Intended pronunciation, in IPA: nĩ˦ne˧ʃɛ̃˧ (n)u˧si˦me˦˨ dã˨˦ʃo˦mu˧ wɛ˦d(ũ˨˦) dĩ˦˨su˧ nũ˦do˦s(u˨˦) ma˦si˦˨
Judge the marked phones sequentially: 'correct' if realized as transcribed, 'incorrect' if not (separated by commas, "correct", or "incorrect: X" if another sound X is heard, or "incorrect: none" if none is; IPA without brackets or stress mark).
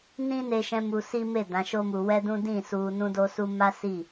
incorrect: m, incorrect: ũ˦, incorrect: u˦